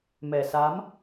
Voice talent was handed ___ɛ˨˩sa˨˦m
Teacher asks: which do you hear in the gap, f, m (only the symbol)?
m